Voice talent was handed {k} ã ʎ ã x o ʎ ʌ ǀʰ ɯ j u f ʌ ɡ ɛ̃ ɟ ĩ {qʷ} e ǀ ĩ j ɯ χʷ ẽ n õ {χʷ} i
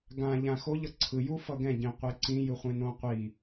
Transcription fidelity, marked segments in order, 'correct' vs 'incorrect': incorrect: ɡ, correct, incorrect: qʷ

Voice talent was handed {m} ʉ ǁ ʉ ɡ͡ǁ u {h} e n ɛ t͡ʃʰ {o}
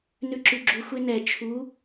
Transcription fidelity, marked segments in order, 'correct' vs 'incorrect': incorrect: n, incorrect: xʷ, incorrect: u

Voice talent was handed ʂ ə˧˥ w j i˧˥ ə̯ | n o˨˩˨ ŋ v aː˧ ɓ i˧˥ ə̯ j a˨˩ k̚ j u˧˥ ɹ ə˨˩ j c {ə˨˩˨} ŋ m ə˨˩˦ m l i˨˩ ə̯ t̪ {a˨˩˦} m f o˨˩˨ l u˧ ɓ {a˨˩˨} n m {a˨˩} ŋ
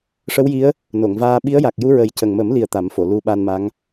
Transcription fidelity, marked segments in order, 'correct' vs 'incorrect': incorrect: ə˨˩, correct, incorrect: a˧, incorrect: a˧˥

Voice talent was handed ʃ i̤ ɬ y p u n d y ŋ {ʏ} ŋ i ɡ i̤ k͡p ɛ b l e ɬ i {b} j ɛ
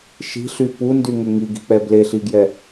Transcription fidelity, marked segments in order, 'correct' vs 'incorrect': correct, incorrect: ɡ

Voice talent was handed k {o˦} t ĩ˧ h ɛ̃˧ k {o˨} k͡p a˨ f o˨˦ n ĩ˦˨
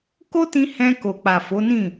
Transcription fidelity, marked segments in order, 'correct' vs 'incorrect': correct, correct

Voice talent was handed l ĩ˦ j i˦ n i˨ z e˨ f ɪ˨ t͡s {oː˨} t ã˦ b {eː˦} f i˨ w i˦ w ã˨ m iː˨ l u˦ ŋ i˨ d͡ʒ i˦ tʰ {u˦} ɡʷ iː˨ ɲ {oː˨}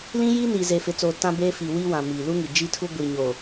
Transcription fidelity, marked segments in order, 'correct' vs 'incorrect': correct, correct, correct, correct

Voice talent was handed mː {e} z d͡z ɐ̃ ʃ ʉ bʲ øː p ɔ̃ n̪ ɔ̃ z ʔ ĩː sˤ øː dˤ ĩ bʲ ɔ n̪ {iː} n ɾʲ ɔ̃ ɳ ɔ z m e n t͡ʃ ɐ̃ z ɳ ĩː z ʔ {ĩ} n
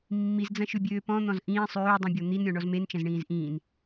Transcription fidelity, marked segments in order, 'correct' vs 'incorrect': incorrect: i, incorrect: i, incorrect: ĩː

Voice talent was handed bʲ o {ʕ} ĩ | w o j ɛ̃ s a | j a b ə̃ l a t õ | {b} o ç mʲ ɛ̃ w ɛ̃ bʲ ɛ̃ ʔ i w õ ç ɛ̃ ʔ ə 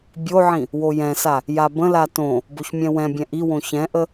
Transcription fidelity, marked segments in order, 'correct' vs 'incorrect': correct, correct

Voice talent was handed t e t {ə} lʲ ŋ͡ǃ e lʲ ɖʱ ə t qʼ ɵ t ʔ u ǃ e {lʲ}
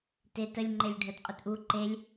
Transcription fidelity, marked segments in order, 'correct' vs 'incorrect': correct, correct

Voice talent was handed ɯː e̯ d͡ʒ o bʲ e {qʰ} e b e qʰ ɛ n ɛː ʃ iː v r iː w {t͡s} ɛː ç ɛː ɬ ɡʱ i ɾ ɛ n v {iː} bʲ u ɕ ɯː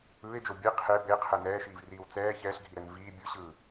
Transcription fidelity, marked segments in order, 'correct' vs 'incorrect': correct, correct, correct

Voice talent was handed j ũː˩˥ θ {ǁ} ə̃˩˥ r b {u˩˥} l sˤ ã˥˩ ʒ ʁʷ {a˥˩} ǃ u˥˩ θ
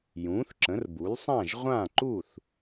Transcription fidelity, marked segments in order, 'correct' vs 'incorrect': correct, correct, incorrect: ã˥˩

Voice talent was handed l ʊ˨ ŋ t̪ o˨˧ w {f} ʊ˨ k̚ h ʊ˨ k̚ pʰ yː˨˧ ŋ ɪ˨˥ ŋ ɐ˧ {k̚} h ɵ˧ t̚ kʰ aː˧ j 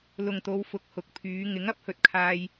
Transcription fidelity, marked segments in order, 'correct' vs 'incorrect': correct, incorrect: p̚

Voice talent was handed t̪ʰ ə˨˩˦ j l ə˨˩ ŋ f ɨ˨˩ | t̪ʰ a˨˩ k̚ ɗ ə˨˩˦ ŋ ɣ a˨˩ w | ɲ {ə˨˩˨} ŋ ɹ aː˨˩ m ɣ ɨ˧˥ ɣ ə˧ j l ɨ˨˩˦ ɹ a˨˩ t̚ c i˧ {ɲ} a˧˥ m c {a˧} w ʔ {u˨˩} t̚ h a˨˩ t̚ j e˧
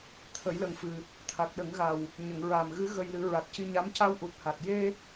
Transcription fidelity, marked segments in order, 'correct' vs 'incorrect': correct, correct, correct, correct

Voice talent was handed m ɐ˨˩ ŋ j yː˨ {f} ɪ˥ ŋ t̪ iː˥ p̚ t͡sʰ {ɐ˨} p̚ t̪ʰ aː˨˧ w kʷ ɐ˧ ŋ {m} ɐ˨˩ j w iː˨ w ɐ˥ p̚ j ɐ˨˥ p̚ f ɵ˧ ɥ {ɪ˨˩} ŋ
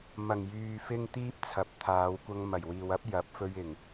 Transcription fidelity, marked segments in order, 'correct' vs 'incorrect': correct, correct, correct, correct

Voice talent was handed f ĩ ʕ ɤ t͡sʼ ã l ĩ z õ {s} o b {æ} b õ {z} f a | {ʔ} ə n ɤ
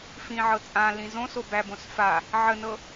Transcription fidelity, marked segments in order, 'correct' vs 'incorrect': correct, correct, incorrect: s, incorrect: ʕ

